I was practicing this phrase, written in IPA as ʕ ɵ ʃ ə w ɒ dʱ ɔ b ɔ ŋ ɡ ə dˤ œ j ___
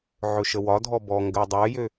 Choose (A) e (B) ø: B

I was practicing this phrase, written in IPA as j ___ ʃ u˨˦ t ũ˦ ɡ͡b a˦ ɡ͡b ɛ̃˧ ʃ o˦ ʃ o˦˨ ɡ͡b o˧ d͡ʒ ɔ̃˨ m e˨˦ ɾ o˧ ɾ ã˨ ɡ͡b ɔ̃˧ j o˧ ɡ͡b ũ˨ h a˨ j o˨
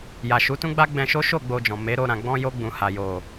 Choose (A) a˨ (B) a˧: A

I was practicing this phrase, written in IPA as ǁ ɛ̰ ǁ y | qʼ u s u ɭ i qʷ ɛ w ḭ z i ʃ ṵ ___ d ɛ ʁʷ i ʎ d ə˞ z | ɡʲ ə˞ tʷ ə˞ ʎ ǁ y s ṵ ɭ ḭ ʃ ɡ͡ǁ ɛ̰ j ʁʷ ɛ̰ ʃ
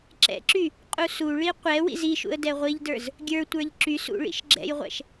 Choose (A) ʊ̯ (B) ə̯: B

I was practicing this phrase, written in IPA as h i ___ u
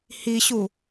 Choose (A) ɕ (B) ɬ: A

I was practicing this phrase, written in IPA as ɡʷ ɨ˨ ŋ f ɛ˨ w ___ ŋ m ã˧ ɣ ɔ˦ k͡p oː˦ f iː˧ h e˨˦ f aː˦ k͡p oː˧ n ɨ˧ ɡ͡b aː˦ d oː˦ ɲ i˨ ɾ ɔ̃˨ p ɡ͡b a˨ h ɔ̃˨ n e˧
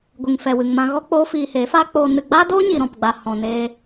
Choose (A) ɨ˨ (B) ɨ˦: A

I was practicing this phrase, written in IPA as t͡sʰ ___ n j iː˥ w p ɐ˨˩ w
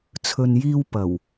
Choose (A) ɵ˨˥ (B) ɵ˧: B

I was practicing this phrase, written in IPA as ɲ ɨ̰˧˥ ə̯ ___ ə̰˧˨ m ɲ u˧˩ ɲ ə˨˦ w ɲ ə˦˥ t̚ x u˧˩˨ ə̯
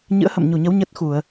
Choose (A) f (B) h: B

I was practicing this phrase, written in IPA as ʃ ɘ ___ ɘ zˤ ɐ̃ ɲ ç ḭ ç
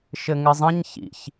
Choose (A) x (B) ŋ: B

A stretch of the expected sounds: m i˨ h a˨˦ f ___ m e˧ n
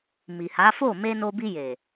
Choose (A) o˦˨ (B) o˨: A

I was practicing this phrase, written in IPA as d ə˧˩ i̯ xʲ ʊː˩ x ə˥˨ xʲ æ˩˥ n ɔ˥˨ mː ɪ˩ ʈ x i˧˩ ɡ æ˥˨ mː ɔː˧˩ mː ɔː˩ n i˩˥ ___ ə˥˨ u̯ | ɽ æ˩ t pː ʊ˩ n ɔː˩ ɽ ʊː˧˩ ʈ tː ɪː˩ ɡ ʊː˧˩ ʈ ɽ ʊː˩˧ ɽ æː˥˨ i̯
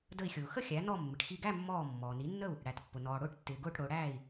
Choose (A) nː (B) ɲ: A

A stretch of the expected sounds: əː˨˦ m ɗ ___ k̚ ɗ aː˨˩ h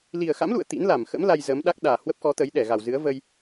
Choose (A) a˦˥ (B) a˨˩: A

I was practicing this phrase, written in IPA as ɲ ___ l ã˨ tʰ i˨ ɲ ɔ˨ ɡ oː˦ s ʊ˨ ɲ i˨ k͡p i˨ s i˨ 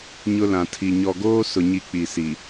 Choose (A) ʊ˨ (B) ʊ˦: B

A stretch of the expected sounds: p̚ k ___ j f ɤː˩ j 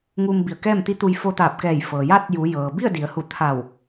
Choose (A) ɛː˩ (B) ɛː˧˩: B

